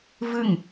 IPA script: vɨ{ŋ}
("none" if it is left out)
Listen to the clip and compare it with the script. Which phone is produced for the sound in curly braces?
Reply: ŋ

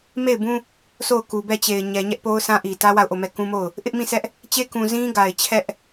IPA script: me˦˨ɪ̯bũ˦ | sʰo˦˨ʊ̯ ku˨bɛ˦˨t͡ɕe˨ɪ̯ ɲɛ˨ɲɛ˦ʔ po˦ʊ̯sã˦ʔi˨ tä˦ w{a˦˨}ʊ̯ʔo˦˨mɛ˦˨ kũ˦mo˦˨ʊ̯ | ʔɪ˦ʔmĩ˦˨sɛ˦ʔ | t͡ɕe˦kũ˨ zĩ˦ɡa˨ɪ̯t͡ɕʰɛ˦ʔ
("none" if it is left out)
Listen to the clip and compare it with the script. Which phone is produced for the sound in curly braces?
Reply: a˦˨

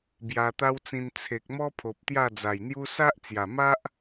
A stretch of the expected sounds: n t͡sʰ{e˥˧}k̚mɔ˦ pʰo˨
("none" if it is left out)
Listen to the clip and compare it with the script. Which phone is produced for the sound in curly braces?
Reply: e˨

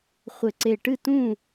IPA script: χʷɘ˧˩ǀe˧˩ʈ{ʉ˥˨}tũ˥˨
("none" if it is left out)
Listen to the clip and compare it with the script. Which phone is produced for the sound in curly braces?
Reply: ɨ˥˨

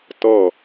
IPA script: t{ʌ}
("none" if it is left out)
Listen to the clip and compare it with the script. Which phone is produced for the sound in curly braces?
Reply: ʌ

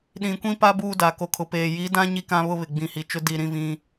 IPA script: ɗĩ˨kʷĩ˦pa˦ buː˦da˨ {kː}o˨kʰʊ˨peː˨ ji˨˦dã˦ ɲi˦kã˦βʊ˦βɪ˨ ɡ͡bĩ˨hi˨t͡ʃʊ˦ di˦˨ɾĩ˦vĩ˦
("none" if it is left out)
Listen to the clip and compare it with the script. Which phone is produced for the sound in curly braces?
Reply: k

